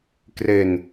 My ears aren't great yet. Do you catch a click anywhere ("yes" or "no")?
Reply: no